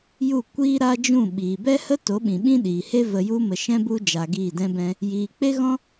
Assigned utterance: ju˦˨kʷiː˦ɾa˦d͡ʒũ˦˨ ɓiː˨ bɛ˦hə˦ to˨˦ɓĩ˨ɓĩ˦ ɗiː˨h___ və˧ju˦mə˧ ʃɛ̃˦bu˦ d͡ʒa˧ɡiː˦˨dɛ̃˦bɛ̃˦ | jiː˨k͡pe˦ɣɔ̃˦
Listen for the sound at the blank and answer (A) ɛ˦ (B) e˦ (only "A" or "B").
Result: B